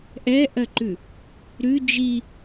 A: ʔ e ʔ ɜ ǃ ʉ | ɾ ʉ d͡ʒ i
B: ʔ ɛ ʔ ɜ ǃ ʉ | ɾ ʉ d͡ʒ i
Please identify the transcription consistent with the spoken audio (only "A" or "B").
B